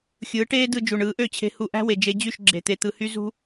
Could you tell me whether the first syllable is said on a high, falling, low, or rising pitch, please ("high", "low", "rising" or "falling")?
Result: rising